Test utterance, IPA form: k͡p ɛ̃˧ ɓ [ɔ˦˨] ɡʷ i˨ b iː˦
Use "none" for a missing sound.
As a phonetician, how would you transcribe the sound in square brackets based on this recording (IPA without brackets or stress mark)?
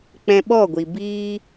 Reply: ɔ˦˨